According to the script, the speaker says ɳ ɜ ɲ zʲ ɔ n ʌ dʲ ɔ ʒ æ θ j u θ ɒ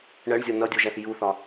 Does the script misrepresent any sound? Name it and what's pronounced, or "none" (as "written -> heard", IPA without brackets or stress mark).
ɲ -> ɳ